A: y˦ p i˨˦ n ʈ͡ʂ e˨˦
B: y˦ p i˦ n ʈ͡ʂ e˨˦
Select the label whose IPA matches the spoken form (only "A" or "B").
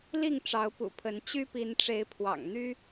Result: A